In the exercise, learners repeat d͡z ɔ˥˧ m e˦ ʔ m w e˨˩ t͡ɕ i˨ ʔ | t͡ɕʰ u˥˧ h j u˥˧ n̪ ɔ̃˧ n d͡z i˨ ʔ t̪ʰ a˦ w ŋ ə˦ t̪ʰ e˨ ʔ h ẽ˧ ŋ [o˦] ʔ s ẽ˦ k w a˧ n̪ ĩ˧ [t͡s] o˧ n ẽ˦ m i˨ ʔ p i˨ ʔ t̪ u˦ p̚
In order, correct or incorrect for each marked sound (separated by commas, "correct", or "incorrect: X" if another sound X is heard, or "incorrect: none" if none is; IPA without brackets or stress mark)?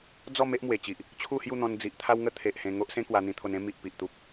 correct, incorrect: t̪ʰ